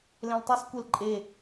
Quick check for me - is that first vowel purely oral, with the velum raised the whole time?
no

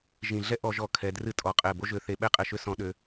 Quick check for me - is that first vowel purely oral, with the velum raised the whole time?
no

